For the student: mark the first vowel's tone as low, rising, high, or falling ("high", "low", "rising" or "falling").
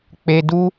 low